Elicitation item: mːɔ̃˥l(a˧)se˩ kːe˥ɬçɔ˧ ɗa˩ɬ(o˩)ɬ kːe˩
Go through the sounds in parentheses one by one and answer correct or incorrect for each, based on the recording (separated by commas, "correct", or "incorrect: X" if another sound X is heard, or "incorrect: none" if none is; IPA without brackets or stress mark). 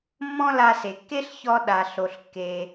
correct, correct